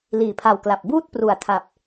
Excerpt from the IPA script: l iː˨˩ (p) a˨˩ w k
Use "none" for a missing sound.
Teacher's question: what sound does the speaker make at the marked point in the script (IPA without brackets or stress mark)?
pʰ